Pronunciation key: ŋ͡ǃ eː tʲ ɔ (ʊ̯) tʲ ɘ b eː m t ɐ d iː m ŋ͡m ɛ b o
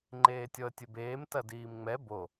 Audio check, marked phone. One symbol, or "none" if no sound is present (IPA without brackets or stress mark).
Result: ə̯